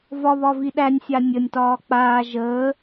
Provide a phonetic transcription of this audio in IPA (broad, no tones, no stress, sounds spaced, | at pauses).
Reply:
v ɒ β ɒ v i ɗ æ nʲ sʲ a nʲ ə nʲ t ɒː k͡p aː ʒ əː